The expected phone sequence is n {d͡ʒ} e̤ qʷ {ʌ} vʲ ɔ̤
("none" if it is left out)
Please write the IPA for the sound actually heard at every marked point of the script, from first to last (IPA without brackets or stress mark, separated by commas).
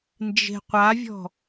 d͡ʒ, a